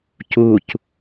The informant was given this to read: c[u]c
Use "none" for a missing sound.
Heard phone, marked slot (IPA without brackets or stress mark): u